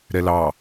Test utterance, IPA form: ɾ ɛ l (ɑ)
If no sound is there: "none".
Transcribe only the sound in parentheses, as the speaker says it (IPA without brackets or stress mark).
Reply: ɑ